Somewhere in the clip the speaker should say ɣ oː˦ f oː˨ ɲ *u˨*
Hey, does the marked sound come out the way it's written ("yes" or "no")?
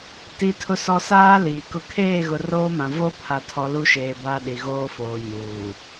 no